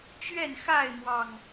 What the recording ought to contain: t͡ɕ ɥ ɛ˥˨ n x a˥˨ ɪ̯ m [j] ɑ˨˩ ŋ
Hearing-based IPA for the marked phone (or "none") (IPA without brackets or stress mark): w